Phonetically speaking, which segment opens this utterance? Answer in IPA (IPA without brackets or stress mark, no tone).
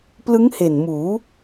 p